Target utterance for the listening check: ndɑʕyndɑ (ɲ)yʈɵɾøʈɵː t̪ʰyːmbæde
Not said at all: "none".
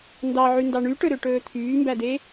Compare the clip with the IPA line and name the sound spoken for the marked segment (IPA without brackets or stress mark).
ɳ